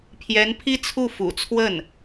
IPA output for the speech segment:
pʰ j ɛ˧˥ n pʰ i˥ t͡sʰ u˥˩ f ṵ˨˩ t͡sʰ w ə˥˩ n

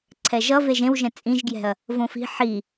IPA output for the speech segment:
ǀʰ ɛ ʒ ʌ v e ʒ ẽ w ʒ ɛ̃ t͡sʼ ĩ ʒ ɡ j ɛ̤ ɐ̯ | v õ f i̤ ħ i

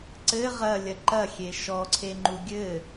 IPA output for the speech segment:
ǀ ɘ ʁ ɐ lʲ ɐ ǃ ɐ xʲ e ʃ ɔ ǀʰ e ŋ͡ǃ u ɡʲ ɘ

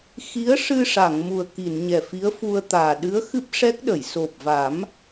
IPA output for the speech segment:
x i˧˥ ə̯ ʂ ɨ˧ ʂ a˨˩˨ ŋ m u˨˩ ə̯ k i˨˩˨ n ɲ ɛ˨˩ f i˧˥ ə̯ f u˧ ə̯ t̪ aː˨˩ ɗ ɨ˧˥ ə̯ x ɨ˦˥ p̚ ʂ ɛ˦˥ k̚ ɗ ə˨˩˨ j s o˨˩ p̚ v a˨˩˦ m

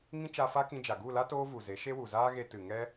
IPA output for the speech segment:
ŋ ĩ˦ t͡ʃ a˧ f a˦ k ĩ˧ d͡ʒ a˨ ɡ u˦˨ l a˦ t oː˦ v u˨ z e˨˦ ʃ e˦ w u˨ z aː˦ ɣ e˧ t ɨ˨ ŋ ɛ˦

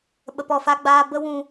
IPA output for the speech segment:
ɓ ə˨ p ɔ˨ f a˧ ɡ͡b aː˧ b ə˦ w ũ˧

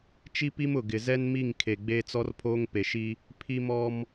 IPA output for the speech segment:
t͡ʃ i˦ p i˦ m ʊ˨ ɡ ɪ˨ z ɛ˦ n m i˦˨ ŋ kʰ e˨ ɡ͡b e˦ t͡s ɔ˦ r pʰ oː˦ ŋ p e˨ ʃ i˦ | pʰ i˦ m ɔ˦ m

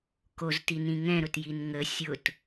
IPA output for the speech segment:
k o z t i n ĩ ŋ ɛ̃ ɾ ʊ t j i n ŋ ə sʲ ʊ t

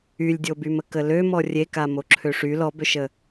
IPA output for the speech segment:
y lʲ dʲ o b y m ə k ə l ø m ɔ rʲ e k a m o ǁʰ ø ʂ y l ɔ b ø ʃ ə

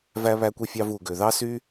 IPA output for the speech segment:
v æ˥ β æ˥ kʷ i˥ fʲ ɑ˥ v u˧ ɡ ø˧ ð ɑ˥ s y˥

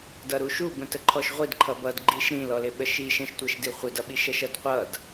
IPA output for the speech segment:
d ʌ ɾ u ʃ u b ə̃ t ə ǃʰ ɔ ʃ ʁʷ i d ǃʰ ʌ b ʌ d ɡ͡ǃ i ʃ ɾ ĩ l ɔ l ɪ ɓ ə ʃ i ʃ ə̃ ʃ tʷ ɜ ʃ d i χʷ ɪ d ʌ ɓ i ʃ ɜ ʃ ʌ d qʷ ʌ d

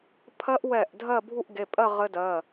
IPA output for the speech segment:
pʰ ɜ˦˥ ʔ w ɛ˧˩ ʔ dʱ ɜ˥˧ bʱ u˥˧ ʔ ɡ e˩˧˩ pʼ ɜ˥˧ ʁ ɘ˦˥ d ɜ˩˧˩

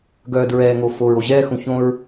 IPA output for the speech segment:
ɡ œː˨ d ɹ ɛː˨ ŋ o˨ f o˨ ɹ o˨ ʑ ɛː˦˨ x ũ˨ ç õ˦ ɹ

